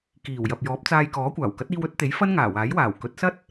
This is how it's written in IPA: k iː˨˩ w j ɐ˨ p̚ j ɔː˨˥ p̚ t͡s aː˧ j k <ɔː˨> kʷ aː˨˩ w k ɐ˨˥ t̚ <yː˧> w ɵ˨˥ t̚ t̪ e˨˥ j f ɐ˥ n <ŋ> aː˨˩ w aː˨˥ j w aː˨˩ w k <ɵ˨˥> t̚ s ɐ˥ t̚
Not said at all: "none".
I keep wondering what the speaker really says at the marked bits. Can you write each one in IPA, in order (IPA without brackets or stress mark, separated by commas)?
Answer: ɔː˨˥, iː˧, ŋ, ɵ˨˥